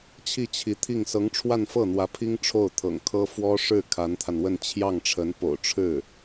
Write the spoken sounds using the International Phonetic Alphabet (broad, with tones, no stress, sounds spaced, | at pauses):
t͡ɕʰ i˥˩ t͡ɕʰ i˧˥ t̪ʰ i˥˩ ŋ s ɤ˧˥ ŋ ʈ͡ʂʰ w a˥˧ n f ɤ˥˩ n̪ w ä˧˥ pʰ i˥ ŋ ʈ͡ʂʰ o˥˩ ʊ̯ t̪ʰ ɤ̰˨˩ ŋ kʰ ɤ˥ f w ɔ˥ ʂ ɻ̩˥˩ kʰ a˧˥ n t̪ʰ a˧ n w ə˥˧ n t͡ɕʰ j ɑ˥˩ ŋ ʈ͡ʂʰ ə˧˥ n p o̰˨˩ ʊ̯ ʈ͡ʂʰ ɻ̩˥˩